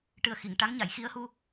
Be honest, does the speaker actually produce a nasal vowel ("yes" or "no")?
no